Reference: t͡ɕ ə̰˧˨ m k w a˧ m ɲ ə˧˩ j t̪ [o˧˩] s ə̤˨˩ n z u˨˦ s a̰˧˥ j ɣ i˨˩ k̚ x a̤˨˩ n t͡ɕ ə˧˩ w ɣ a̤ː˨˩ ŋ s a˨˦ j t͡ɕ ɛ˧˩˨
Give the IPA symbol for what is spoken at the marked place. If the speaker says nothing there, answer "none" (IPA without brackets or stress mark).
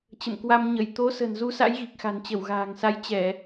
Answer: o˨˦